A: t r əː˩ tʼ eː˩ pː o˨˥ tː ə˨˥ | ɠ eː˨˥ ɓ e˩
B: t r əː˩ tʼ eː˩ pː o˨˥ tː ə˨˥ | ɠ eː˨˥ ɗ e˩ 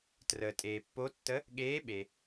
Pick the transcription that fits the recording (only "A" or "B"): A